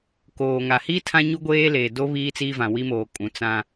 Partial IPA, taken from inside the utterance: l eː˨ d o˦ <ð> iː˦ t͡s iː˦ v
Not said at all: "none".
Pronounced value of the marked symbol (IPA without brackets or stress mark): β